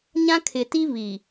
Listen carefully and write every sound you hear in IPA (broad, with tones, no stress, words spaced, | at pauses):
ɲã˦kʰɪ˨ti˦ βi˨